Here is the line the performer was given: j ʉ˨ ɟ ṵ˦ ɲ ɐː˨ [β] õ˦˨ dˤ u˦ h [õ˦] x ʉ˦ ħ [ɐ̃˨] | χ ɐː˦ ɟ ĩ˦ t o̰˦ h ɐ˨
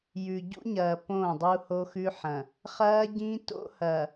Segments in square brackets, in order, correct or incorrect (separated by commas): incorrect, incorrect, correct